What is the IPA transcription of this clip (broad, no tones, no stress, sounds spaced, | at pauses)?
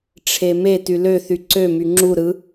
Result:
ʈ͡ʂʰ e m e t y l ø θ y ǀ ø m y ŋ͡ǁ u ɾ ɯ